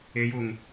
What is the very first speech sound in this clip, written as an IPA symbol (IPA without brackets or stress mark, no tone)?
e